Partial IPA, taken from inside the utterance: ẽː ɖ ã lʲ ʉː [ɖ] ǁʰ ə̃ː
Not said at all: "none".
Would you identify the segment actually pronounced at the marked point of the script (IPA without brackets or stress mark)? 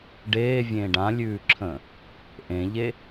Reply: none